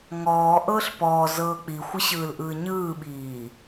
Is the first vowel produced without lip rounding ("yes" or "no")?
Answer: no